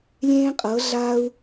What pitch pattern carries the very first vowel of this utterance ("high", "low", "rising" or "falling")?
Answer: high